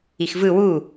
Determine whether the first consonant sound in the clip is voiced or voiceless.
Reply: voiceless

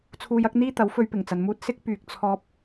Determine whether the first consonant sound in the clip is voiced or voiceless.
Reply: voiceless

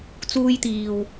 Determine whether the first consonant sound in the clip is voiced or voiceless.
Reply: voiceless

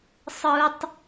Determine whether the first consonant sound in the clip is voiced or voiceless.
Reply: voiceless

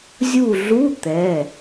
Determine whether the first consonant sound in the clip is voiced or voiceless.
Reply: voiced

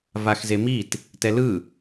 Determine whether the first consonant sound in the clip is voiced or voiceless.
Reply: voiced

